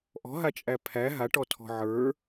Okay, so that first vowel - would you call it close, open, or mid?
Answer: mid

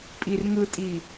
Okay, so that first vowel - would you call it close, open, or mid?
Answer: close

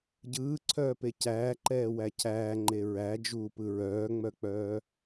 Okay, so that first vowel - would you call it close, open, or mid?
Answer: close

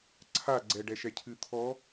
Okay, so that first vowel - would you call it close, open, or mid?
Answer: open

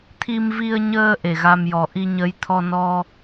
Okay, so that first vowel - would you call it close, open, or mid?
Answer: close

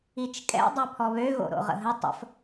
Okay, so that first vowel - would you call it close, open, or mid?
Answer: close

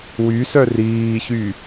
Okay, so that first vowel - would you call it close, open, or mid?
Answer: close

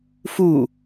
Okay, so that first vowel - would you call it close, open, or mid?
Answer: close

